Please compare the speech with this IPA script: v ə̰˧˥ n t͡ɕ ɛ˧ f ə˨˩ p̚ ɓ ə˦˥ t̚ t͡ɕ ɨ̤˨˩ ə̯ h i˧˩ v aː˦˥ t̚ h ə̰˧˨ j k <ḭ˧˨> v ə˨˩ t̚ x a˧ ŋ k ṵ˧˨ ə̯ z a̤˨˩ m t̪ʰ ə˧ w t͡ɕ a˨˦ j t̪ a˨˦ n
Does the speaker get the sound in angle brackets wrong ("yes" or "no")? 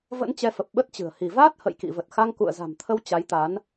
no